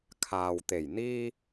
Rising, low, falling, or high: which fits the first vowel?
low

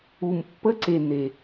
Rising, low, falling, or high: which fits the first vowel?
low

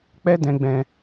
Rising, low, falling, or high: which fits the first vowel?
high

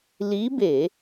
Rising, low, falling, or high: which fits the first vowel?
rising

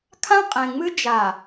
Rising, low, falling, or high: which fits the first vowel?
high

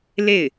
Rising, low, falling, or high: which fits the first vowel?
falling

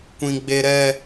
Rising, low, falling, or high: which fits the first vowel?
high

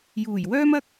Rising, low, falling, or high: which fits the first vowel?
low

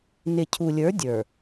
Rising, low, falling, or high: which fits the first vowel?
low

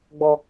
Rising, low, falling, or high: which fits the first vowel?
high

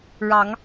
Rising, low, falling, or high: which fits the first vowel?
rising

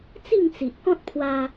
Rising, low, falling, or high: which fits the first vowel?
falling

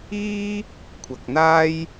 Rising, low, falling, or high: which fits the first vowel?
high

